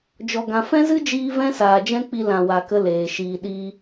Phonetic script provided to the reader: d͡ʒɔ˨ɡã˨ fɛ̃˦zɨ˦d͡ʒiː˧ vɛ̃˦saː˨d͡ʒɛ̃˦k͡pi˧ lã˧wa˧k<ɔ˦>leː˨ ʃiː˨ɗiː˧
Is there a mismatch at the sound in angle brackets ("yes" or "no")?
yes